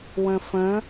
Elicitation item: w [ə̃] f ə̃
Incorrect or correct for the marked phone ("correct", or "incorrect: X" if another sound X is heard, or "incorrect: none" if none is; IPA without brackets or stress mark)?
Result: correct